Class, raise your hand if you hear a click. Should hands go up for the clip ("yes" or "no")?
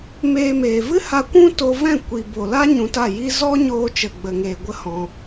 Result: no